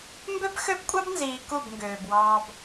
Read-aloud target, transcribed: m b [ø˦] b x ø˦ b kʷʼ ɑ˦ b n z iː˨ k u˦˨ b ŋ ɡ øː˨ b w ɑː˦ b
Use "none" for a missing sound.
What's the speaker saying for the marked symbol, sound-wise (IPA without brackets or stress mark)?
ø˦